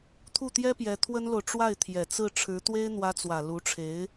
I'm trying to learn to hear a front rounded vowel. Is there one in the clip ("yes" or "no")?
no